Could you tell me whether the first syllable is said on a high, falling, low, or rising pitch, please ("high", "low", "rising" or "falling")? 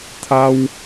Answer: high